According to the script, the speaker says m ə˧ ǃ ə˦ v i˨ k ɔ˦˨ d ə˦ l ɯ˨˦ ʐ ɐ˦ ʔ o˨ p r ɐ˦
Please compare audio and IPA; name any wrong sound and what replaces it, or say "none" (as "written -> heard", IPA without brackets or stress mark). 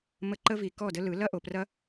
ʐ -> l